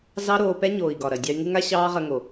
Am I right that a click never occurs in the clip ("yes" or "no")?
yes